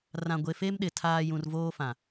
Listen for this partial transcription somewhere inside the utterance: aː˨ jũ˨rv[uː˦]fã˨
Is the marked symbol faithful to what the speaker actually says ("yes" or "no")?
no